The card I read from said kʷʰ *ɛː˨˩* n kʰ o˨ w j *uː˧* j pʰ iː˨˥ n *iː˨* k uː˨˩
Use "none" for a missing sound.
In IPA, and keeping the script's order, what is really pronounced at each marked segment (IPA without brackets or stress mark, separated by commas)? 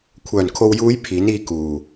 œː˨˩, uː˨˧, iː˧